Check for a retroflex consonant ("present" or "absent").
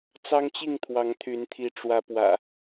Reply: present